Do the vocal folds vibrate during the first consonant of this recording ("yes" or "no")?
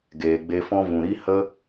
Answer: yes